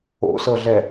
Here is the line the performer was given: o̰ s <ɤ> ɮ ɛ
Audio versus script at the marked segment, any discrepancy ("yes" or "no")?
no